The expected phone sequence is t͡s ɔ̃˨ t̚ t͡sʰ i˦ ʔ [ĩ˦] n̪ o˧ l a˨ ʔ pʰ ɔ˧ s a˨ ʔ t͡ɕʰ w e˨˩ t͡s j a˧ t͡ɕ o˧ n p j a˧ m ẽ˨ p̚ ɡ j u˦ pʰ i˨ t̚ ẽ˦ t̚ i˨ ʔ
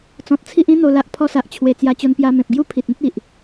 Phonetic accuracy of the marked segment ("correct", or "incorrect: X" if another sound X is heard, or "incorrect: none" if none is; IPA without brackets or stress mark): correct